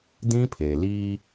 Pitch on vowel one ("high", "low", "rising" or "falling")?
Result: high